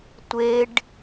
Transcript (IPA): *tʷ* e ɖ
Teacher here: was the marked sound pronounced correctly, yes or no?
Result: yes